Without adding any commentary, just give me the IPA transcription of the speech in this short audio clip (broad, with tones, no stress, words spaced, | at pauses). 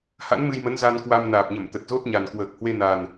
ha̰˧˥nmɨ˧jmə˨˦n za˧nkwa˧m naː˨˩p̚ɲə˧˩m t̪ə˨˩t̚zo˦˥t̚ɲa˨˩n kwəː˨˩k̚hwe˧na˨˩n